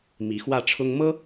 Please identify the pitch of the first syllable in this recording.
rising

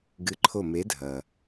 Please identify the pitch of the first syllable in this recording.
rising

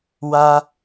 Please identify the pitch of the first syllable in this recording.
low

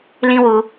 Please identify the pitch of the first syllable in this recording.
high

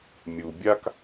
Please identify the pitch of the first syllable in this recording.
low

